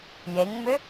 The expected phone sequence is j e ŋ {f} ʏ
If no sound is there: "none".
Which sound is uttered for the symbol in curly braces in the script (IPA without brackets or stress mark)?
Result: m